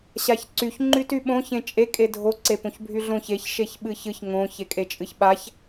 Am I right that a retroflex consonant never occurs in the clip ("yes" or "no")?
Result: yes